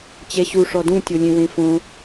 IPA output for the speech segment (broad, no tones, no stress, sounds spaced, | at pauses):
t͡ɕ ɛ ɕ u ʂ ɔ d ũ tʲ o lʲ ẽ w ẽ f õ